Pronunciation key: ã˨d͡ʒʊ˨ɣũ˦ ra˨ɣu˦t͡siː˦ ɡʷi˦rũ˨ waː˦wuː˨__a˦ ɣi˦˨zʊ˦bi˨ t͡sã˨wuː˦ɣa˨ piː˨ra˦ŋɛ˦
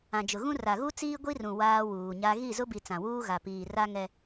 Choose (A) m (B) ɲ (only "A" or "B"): B